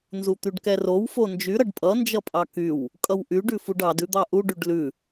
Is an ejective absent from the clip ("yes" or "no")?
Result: no